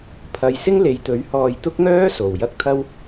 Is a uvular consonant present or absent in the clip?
absent